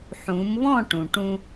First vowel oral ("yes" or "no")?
no